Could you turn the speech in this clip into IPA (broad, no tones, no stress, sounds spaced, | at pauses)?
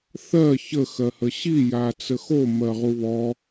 θ ɜ ç ə x ɜ h ə ɕ i j a t͡s ə x o m ɜ ʁ u β ɔ